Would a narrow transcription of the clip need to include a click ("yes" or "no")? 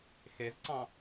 yes